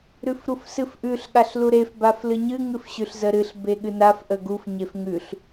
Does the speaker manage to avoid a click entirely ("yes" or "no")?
yes